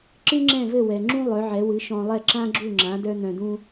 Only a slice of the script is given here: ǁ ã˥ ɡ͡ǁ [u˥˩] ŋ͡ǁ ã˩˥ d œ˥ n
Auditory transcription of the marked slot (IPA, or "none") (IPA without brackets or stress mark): u˥˩